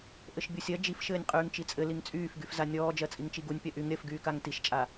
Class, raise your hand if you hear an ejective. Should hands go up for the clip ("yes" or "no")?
yes